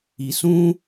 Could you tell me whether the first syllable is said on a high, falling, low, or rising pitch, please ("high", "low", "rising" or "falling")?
low